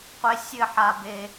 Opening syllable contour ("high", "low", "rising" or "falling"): high